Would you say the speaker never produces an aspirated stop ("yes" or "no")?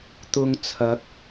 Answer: no